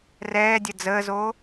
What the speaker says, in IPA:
r ɛː dʲ ə d͡z əː z oː

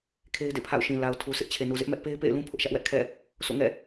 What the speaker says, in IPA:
kʰ e˦ ɪ̯ d ḛ˦˨ pʰ a̰˦˨ ʊ̯ ʃ ĩ˨ l a˨ ʊ̯ tʰ u˨ s ɪ˦ ʔ t͡ɕʰ e˨ n u˨ z ɪ˦ ʔ m ɛ˦ ʔ p e˦ ɪ̯ p ḛ˦˨ ɪ̯ l ũ˦ pʰ ʊ˦ ʔ ʃ ä˦ ʔ w ɛ˦ ʔ kʰ ɛ̰˦˨ | s o̰˦˨ ŋ ɛ̰˦˨

